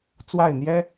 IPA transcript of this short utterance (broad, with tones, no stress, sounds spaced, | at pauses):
t͡s w a˥˨ ɪ̯ n̪ j ɛ˦